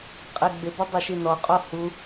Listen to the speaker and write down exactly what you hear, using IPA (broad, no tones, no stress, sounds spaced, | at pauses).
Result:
qʼ e ɡ͡b ɪ b ʊ dˤ ɪ ʃ i n ɔ qʼ o h u